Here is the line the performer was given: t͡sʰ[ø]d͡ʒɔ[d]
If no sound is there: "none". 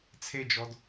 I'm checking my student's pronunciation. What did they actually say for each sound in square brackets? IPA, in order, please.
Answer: e, d

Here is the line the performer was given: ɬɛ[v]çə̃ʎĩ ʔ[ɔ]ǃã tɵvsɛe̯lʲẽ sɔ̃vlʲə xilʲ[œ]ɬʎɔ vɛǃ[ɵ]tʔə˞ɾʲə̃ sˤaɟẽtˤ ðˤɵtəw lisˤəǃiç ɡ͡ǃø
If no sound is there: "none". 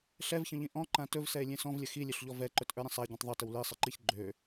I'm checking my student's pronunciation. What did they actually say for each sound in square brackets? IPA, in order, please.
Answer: v, ɔ̃, ø, ɵ

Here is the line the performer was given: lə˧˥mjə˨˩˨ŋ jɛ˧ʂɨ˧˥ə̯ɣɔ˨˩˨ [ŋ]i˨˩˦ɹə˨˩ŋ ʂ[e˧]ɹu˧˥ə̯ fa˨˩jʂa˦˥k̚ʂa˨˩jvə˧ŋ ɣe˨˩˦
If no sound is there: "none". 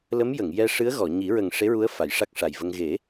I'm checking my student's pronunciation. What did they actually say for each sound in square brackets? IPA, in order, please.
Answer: ɲ, e˧˥

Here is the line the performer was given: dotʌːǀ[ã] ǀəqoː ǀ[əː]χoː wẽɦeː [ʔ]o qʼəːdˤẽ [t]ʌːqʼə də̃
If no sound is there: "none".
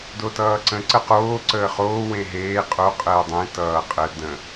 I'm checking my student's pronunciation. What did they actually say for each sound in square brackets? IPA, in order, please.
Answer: ə̃, əː, qʼ, t

